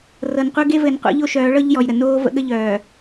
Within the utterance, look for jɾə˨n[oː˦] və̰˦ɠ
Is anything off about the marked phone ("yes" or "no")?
no